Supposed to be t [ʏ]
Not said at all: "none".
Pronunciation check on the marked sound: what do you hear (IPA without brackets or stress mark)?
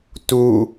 u